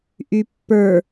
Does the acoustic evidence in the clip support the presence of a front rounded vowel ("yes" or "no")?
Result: yes